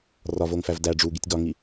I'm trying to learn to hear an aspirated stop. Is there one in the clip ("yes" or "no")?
no